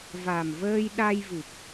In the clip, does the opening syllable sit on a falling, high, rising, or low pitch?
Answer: low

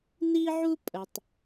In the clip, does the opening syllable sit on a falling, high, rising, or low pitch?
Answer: high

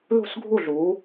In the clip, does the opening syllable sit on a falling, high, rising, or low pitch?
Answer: falling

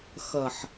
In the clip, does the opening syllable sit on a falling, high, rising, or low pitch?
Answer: low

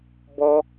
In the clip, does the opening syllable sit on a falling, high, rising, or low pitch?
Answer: high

